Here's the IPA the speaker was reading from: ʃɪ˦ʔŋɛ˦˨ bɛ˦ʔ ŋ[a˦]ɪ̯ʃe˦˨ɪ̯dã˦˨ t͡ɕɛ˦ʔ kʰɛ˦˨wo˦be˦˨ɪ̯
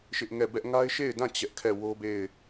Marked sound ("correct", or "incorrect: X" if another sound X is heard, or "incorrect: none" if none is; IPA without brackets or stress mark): correct